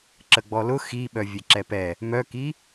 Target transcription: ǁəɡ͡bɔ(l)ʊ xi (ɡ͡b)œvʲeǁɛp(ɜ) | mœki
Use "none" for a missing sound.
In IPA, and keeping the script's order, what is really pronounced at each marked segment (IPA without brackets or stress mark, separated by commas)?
l, ɓ, ɛ